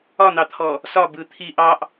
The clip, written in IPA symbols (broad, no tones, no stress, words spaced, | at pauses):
ɒn̪ɑt̪ʰɔ | sɒbɯ t̪ʰi ʔɑʔ